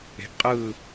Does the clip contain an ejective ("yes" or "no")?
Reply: yes